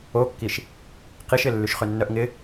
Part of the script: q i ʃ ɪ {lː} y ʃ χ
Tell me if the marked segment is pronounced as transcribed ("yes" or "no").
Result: yes